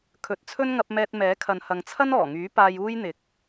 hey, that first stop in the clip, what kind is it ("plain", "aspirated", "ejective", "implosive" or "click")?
aspirated